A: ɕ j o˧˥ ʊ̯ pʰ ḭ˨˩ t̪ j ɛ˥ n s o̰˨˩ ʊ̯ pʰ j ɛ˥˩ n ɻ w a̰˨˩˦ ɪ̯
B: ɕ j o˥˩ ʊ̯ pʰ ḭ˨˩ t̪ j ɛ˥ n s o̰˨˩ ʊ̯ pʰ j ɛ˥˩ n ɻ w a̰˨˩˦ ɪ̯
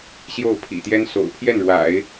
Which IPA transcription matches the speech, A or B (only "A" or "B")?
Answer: B